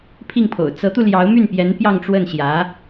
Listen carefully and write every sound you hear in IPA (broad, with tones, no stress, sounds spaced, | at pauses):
pʰ i˥˩ ŋ pʰ o̰˨˩ ʊ̯ t͡s ɤ˧˥ t̪ u˧ l j ɑ˧˥ ʊ̯ m y˥˩ n p j ɛ˧˥ n p j ɑ˥˧ ŋ ʈ͡ʂ w ə˥˩ n ɕ j ä˧˥